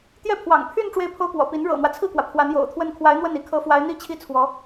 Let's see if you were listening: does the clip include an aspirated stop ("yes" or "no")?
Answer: yes